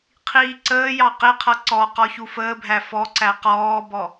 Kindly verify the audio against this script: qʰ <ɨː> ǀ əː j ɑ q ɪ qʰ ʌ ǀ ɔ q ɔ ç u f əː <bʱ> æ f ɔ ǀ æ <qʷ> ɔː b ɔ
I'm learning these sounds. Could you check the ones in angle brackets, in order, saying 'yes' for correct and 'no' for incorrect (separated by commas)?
no, yes, no